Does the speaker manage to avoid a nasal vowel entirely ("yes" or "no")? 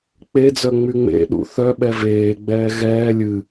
yes